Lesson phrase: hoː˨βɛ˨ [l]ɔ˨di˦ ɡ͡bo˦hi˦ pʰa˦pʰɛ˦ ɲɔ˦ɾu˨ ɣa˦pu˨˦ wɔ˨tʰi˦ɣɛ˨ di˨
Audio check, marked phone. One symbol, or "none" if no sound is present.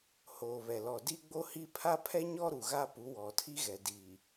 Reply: l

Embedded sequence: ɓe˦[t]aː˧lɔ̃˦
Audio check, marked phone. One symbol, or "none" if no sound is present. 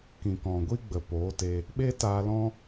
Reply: t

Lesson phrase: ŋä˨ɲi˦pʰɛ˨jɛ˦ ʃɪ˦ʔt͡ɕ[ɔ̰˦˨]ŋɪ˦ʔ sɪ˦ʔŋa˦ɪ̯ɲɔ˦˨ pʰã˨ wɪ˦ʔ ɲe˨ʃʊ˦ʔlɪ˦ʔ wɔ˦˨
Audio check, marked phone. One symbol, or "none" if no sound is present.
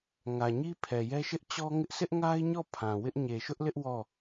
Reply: ɔ˦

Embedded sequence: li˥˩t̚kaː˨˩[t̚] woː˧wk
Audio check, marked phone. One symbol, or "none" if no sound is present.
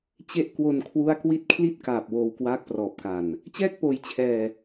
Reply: p̚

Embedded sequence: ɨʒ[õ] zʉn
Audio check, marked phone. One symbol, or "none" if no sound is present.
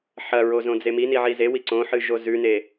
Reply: o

